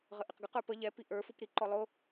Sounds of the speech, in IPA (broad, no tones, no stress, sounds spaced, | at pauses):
ʁ ə ʔ ɪ q ɡ ə q ə˞ p ə ʎ ɛ p i ʔ ə˞ f u p ɾ i ǃ ɔ lˠ ʊ